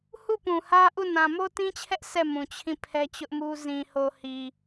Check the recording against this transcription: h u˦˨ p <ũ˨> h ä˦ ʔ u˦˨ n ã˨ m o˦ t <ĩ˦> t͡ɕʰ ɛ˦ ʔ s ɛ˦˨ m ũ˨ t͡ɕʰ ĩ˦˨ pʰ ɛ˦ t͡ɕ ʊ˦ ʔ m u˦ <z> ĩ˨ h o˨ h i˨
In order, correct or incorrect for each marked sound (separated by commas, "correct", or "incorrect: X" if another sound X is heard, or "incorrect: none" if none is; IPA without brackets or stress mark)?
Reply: correct, correct, correct